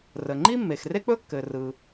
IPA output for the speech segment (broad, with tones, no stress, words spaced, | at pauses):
rə˩ŋ͡ǃi˥mːe˩x re˥k͡pɵ˥kːɘ˩rɯ˩